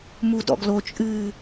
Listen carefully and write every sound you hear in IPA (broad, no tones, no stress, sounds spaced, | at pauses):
m u d ɔ̰ ɡ l o t͡ʃʼ ɨː